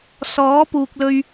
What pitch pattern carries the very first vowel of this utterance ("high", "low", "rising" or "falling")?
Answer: rising